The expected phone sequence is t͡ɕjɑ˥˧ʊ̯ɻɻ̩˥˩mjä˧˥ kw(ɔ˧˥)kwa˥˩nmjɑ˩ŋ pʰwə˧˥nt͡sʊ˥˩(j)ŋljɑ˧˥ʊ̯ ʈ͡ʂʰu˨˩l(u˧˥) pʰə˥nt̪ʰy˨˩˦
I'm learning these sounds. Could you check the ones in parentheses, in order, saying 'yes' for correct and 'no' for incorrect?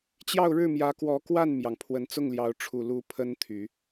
yes, no, yes

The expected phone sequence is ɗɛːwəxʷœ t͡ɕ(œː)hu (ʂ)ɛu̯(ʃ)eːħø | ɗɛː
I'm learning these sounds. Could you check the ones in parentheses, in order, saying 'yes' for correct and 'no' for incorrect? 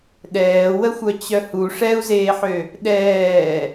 no, yes, no

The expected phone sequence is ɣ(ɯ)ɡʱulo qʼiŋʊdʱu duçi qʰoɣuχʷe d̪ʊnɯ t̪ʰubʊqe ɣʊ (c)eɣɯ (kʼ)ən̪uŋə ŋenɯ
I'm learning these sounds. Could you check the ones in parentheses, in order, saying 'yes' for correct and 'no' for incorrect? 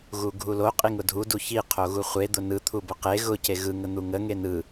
no, yes, no

